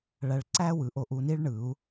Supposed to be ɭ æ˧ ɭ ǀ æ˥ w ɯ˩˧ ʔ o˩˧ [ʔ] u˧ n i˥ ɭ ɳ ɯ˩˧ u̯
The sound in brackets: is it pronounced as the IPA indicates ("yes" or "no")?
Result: yes